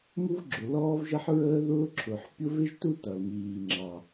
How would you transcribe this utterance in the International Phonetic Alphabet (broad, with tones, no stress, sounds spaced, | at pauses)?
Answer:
m u˥ v ɡ͡ǁ ʊ˩ l ɔː˥ v ʒ ʌ˥ ħ ɹ əː˥ ð ʊː˥ ǁʰ ʊː˩ ħ pʲ ʊ˥ v ɪ˥ ʒ t u˥ t ʌ˩ l m iː˩ ŋ͡ǁ ɑ˩